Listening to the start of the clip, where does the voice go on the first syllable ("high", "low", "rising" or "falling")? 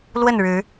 falling